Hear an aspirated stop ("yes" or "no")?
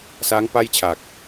yes